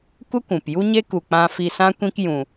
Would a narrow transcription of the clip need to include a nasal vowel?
yes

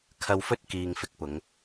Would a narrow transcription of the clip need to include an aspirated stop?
yes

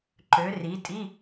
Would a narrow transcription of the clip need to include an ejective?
yes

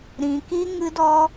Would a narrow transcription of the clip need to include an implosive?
no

